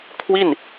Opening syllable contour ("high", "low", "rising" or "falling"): falling